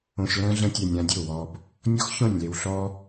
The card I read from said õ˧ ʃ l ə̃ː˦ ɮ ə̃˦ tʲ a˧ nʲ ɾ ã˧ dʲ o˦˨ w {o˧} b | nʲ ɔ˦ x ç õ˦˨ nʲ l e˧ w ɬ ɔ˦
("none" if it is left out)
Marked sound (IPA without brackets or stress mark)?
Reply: ɔ˧